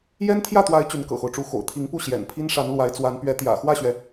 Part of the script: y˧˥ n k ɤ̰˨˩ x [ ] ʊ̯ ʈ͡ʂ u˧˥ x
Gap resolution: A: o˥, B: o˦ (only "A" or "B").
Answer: B